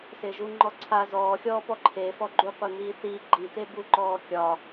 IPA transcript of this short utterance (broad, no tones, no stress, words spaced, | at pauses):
sɪːʒuŋ͡ǃɔǀʰa zɔːxʲɔːpɔ ǃʰefɔ ɡ͡ǃu qʷen̪iːθiː ɡ͡ǃit̪e buǃɔːkʲɒ